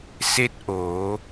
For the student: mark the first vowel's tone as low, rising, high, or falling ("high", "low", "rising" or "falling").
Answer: rising